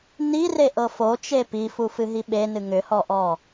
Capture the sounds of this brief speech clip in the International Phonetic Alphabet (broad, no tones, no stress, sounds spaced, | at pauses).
n i r e ʔ ɤ f o t͡ʃ e p i f u f ɨ ɦ i ɓ e n ɨ ŋ ʏ h ɔ ʔ ɔ